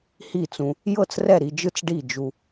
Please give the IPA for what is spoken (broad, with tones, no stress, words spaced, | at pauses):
hi˥˩t͡sũ˧ | jɤ˥˩t͡srɛ˥˩ɾi˧d͡ʒɯ˥˩t͡s ɖi˥˩d͡ʒu˧